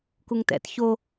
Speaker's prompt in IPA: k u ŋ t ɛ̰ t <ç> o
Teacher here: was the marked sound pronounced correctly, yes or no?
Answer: yes